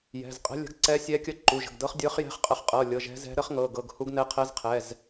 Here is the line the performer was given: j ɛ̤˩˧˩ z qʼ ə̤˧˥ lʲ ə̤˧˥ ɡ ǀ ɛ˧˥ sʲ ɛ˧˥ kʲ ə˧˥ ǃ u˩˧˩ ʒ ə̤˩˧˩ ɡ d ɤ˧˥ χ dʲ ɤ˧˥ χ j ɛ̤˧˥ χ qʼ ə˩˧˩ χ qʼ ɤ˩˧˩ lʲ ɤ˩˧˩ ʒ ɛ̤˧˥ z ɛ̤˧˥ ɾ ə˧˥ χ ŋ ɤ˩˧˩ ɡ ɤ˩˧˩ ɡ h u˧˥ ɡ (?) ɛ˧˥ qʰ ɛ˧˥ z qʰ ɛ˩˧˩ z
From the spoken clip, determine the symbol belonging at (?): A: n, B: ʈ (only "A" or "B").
A